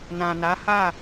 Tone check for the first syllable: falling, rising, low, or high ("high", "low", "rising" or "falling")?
low